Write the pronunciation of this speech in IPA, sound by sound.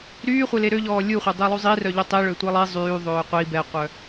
ɾ yː χʷ e l e ɾ ø ʎ ɔː lʲ u χʷ œ dˤ i lˠ u zˤ i r œ ʎ o tˤ i ɭ ø tʷ e lˠ i zˤ yː ðˤ øː qʷ i b ɛ qʷ œ

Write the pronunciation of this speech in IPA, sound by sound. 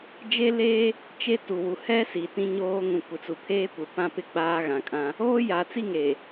d͡ʒ e˦ l eː˦ | t͡ʃ e˦ t u˨ w u˨ h ɛ˦ s i˨ t ĩ˦ ɲ oː˦ ŋ ũ˨ kʷ ɪ˨ t͡s u˨ pʰ eː˦ kʷ ɪ˨ p ã˦ p ɪ˦ ɡ͡b aː˦ ɣ ã˨ kʼ ã˦ | oː˦ j a˨ t͡s i˦ ŋ e˨

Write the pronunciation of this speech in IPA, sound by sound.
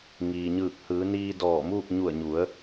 ŋ iː˩ ɲ ɯː˧˩ k̚ h ɯː˩˧ n iː˧ d ɔː˧˩ m uː˥˨ k̚ ɲ u˧˩ ə̯ ɲ u˩˧ ə̯

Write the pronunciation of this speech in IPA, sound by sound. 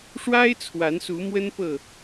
ʂ w a˦ ɪ̯ t͡sʰ w a˨˦ n s u˨˦ m w ə˦ n p ɤ˥˨

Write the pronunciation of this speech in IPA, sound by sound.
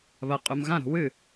β ɐ qʼ u m ɣ ã ɾ o̤ w ɨ

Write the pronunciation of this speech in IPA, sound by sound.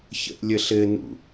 ç ə̰ ʔ lʲ ə ɬ ɘ n ṵ

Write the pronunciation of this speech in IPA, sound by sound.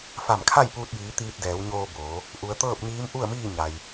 f a˧˩ m kʰ a˥˨ j p uː˧ t̚ j iː˩˧ t̪ iː˧ t̚ d ɛː˩˧ w ɲ oː˧ b oː˩˧ | ʔ u˩ ə̯ t̪ ɤː˥˨ p̚ ɲ iː˧˥ m ʔ u˥˨ ə̯ m iː˥˨ ɲ a˩ j

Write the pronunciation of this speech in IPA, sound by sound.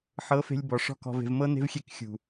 ħ ɤ˨˦ f e̤˧ lʲ b ɔ˨ ʂ ɔ̤˦˨ k ɔ̤˧ v e̤˧ v m ɤ˦ n e̤˦ v xʲ e˦˨ k xʲ ṳ˨

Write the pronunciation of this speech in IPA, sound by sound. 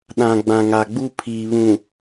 ɗ ã˨ ɡ͡b ã˨ ŋ a˨ ɡ͡b u˦ pʰ iː˨ β ũ˨

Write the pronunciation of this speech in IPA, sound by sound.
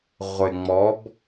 ʁʷ ɪ˨ ŋ͡m ɔ˨˦ b

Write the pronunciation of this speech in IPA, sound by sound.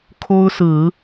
kʰ o˦ ʊ̯ s ɹ̩˨˦

